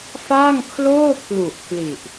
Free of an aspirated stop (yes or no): no